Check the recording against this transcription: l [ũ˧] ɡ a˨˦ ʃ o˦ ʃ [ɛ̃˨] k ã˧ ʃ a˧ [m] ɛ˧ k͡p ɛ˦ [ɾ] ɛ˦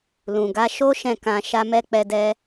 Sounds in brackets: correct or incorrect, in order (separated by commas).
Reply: incorrect, incorrect, correct, incorrect